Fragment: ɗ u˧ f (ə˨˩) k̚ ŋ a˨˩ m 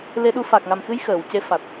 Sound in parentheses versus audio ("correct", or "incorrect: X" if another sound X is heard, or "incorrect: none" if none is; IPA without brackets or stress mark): incorrect: a˨˩